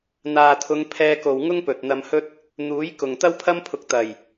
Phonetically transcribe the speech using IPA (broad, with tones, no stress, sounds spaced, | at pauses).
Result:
n̪ aː˨ t̪ʰ ʊ˨˧ ŋ pʰ ɛː˧ k o˨ w ŋ ʊ˥ ŋ p ɵ˨ t̚ n̪ ɐ˧ m h ɵ˥ t̚ | n̪ uː˨˥ j k ʊ˨ ŋ t̪ ɐ˥ w pʰ ɐ˥ m pʰ ʊ˧ k̚ t̪ ɐ˨˩ j